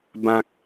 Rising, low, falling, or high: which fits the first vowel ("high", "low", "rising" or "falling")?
low